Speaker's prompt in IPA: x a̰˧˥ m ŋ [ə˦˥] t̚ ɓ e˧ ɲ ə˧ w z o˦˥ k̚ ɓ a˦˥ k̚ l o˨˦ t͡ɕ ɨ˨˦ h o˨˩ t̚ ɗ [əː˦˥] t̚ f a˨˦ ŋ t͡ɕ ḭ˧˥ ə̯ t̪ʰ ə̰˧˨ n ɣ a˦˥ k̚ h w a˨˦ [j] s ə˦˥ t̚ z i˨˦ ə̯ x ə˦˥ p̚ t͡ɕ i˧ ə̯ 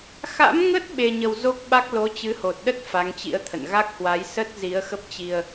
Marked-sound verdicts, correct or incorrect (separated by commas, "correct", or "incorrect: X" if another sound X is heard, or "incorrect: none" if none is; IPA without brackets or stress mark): correct, incorrect: ə˦˥, correct